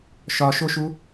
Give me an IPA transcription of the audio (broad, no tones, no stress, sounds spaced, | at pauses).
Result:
ʃ ɒ ʃ o ʃ u